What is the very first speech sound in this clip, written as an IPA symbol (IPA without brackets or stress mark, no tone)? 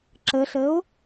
ǁ